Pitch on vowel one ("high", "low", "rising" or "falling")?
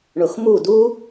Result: low